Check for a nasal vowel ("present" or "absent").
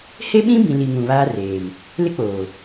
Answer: present